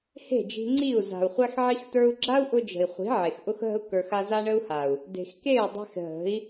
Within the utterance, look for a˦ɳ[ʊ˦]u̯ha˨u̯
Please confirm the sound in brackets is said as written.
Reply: no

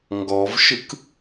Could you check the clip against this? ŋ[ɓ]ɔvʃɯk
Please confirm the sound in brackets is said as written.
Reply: no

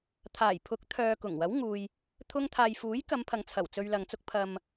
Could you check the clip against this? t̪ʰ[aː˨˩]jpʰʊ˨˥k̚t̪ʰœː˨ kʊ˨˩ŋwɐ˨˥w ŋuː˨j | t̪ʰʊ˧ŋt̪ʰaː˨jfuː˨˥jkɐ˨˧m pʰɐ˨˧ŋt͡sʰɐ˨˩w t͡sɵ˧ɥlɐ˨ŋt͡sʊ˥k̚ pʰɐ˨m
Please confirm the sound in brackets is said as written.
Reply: yes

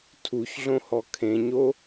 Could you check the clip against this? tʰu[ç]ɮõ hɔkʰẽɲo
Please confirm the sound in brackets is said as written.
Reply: yes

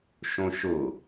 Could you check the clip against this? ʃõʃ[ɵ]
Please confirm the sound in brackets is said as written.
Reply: no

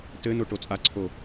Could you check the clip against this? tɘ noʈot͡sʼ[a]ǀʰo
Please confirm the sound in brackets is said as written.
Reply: yes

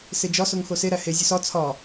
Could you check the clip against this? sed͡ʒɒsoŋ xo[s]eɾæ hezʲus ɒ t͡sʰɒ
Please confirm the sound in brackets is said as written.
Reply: yes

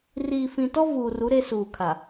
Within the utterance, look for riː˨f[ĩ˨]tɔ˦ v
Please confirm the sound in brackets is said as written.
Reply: yes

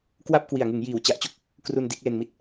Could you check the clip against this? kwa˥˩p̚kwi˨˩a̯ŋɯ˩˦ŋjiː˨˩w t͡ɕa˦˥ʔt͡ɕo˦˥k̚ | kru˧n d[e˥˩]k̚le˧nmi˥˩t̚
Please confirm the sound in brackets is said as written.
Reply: no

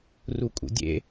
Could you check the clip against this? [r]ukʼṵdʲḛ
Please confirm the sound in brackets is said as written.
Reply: yes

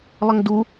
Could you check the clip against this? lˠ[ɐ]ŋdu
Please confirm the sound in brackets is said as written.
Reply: yes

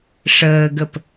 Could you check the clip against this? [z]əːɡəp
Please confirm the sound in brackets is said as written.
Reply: no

